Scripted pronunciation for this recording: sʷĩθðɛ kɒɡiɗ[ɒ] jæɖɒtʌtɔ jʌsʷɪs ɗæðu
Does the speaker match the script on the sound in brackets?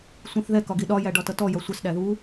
yes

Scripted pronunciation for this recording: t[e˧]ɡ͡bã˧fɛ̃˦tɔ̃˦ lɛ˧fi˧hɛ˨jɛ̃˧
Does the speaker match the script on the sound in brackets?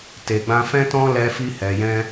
no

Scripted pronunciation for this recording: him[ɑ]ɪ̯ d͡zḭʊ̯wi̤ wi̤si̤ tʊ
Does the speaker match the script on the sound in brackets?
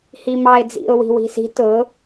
yes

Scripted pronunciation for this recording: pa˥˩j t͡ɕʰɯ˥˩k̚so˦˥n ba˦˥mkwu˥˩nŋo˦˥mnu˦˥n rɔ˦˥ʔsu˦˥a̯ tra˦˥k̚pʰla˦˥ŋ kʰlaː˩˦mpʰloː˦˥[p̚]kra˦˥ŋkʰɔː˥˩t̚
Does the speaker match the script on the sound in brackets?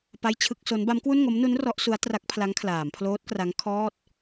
no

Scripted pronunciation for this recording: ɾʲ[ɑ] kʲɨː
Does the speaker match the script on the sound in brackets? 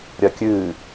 no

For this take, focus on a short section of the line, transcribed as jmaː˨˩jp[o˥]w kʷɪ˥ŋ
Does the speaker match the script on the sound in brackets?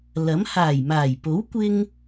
no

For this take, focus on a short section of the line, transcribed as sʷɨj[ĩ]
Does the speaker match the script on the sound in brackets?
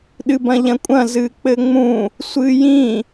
yes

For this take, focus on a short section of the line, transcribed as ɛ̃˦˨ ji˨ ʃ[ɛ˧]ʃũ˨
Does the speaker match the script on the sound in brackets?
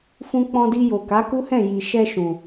yes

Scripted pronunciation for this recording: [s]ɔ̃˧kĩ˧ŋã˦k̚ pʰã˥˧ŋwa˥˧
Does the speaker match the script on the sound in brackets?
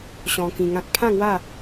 no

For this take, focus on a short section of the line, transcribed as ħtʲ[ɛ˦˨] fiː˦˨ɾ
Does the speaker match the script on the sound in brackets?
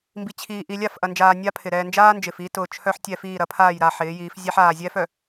yes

